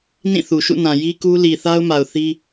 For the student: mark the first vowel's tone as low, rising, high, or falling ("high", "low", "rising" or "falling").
falling